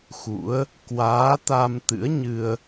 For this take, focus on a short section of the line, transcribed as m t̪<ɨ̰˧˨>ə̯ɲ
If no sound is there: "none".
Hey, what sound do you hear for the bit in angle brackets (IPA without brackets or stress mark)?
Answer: ɨ̰˧˥